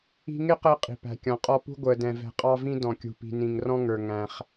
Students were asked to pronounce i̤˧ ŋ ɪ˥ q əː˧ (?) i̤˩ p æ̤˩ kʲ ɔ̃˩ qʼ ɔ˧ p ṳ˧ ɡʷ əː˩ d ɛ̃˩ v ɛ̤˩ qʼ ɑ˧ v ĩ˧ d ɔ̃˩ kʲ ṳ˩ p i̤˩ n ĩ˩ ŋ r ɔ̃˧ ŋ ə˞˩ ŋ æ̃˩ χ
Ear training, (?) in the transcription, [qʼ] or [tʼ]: qʼ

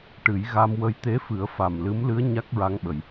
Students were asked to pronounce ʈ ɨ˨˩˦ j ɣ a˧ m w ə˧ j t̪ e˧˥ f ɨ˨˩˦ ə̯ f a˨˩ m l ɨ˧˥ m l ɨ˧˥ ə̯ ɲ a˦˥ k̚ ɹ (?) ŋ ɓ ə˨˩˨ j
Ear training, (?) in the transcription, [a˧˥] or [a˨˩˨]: a˧˥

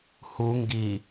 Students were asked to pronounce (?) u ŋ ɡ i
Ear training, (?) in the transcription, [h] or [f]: h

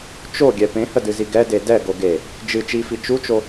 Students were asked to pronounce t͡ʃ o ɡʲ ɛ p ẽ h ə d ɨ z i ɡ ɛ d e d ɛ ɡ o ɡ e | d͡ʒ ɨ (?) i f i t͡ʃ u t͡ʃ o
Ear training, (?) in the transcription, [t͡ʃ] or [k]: t͡ʃ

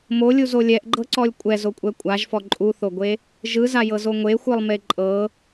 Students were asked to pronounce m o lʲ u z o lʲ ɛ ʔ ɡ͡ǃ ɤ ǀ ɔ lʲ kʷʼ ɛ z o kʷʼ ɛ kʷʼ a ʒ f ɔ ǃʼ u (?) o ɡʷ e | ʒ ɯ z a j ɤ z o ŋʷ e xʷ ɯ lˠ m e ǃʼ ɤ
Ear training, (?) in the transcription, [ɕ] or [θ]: θ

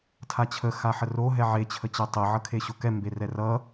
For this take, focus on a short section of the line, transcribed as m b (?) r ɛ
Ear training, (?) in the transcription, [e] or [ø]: e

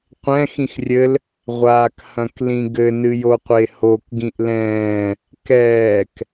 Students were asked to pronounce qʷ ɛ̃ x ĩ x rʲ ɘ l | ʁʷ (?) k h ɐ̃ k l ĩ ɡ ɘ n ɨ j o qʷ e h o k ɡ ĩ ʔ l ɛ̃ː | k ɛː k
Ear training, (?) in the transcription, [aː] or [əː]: aː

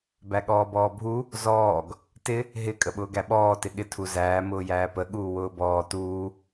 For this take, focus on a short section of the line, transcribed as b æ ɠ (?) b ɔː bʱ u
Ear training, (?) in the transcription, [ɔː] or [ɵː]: ɔː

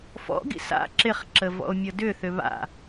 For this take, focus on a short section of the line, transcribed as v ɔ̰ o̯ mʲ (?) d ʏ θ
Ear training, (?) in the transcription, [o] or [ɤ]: ɤ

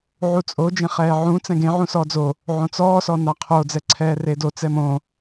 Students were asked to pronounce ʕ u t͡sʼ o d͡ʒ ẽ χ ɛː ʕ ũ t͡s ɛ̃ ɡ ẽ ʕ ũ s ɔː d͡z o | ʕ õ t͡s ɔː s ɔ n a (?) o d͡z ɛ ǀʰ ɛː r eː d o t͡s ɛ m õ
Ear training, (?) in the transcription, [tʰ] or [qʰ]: qʰ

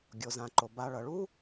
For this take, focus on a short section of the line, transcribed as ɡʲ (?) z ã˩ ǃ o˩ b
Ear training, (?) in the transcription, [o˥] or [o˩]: o˩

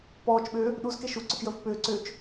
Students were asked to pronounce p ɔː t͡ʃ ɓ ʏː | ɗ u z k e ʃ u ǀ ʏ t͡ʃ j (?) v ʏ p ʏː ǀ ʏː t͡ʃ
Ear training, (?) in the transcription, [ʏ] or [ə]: ə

